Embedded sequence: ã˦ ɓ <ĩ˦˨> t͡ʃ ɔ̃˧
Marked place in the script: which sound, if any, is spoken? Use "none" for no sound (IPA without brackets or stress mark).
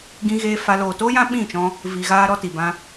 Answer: ĩ˦˨